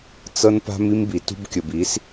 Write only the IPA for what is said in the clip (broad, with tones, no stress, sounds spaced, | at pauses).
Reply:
t͡s ɤ˦ n p a̤˦ m i˦ m b i˨ t ṳ˦ b kʲ ə˨ b i˨˦ s